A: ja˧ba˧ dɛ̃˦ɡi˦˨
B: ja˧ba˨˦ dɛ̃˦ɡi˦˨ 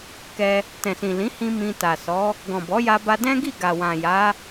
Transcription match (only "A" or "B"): A